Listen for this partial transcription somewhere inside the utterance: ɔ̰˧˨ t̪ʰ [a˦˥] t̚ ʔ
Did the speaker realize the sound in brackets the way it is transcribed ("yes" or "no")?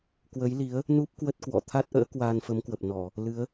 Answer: yes